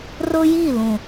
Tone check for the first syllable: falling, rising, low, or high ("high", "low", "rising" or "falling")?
high